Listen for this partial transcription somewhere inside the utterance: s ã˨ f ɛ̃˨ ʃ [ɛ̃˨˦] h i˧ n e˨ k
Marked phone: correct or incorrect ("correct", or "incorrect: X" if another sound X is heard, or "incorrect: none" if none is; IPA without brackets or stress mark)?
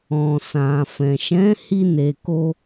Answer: correct